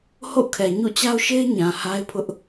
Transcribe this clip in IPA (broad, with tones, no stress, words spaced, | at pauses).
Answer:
ho̰˦˨kʰɛ˨ ɲṵ˦˨t͡ɕa˦ʊ̯ʃe˦ɪ̯ ɲã˨ ha˦ɪ̯pʰʊ˦ʔ